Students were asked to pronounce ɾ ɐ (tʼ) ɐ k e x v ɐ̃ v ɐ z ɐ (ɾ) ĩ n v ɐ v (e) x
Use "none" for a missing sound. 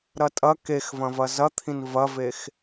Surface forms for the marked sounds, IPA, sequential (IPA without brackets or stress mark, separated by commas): tʼ, t̪ʰ, e